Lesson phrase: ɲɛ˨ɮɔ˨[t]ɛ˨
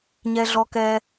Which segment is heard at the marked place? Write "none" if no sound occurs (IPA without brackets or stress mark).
k